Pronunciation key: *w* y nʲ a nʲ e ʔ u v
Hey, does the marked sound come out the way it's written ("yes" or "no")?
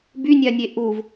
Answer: no